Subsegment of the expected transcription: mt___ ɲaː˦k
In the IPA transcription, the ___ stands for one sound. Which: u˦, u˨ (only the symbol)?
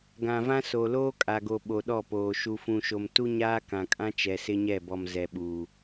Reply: u˦